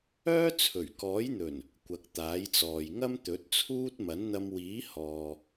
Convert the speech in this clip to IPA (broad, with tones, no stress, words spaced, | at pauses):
œː˥t͡sʰɵ˨˩ɥkɔː˨˥jn̪ɵ˨˩n | kʷɐ˨k̚t̪aː˨˥jt͡sɔː˨j ŋɐ˥mt̪ɵ˨˥t̚t͡sʰuː˥t̚ mɐ˨˥nn̪ɐ˧m wiː˨˥ hɔː˨